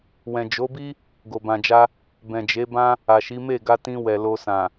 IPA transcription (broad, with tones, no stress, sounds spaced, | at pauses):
w ɛ̃˨ d͡ʒ o˨˦ b i˦ | ɡ o˨ b ã˨ d͡ʒ a˧ | b ɛ̃˨ d͡ʒ e˨˦ b ã˦ | a˨ ʃ i˨˦ m e˦˨ ɡ a˧ t ĩ˧ w ɛ˨ l o˧ s ã˨